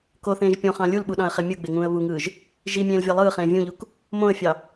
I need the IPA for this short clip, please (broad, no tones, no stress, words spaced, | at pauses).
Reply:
koθẽːʒ pʲõχɑ̃ lʲulɓuɗɑ̃ə̯χe mʲɯɡ͡beŋũːə̯ βuŋɯːʒ | ʒimʲẽːlvʲɑ lˠɯːχẽː vʲũʎuk | mõə̯fʲɑ